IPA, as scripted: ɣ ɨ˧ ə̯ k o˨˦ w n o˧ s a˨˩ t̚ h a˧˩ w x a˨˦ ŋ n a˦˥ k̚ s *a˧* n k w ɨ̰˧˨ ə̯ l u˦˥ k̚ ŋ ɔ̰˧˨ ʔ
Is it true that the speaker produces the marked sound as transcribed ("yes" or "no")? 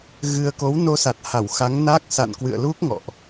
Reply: no